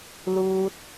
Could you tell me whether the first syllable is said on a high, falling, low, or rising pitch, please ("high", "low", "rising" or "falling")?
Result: low